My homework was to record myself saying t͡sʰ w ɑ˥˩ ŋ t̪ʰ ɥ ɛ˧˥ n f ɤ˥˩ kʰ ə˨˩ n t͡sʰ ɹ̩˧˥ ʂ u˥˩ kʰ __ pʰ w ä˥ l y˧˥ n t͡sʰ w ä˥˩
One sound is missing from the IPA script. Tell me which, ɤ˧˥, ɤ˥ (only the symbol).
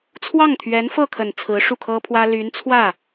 ɤ˥